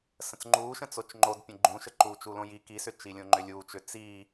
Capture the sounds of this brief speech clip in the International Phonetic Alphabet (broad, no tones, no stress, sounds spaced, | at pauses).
s ə̃ t͡s ŋ͡ǃ uː ʃ ə̃ t͡s o t͡ʃ ŋ͡ǃ o d pʲ ə̃ ɡ͡ǃ ũ ʃ ə ǃ uː t͡ʃ u l õ j i k i s ʏ t͡ʃ i lʲ õ ŋ͡ǃ ʏ lʲ uː t͡ʃ ʏ t͡s i